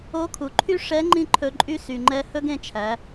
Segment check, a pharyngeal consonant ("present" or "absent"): absent